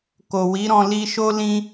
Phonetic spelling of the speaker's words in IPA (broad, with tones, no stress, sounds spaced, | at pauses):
k o˨ w i˨˦ ɾ ɔ̃˧ l i˧ ʃ o˦ l ĩ˧